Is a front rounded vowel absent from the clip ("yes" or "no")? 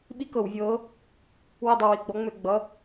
no